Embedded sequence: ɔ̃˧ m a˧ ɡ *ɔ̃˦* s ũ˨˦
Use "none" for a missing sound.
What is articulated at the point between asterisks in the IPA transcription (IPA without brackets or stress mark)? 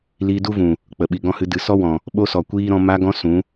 ɔ̃˧